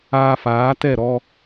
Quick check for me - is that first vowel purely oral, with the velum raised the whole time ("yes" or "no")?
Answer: yes